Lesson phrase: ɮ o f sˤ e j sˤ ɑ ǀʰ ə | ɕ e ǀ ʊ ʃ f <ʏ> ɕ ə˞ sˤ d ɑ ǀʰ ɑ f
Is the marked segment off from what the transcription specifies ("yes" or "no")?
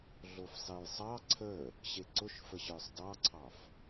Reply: yes